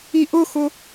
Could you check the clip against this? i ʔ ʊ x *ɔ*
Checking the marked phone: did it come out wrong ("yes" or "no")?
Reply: yes